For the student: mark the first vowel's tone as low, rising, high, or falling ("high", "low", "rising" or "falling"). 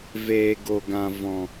low